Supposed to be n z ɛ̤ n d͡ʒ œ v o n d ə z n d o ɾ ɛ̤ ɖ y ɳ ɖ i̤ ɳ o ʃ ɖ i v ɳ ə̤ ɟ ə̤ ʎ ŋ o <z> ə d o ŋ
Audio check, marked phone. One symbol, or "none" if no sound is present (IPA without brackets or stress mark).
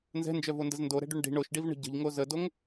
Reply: z